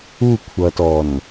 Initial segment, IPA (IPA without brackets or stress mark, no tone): u